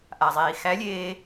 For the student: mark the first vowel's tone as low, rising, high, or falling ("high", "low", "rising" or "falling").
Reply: low